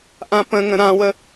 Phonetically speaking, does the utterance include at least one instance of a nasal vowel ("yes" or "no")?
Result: yes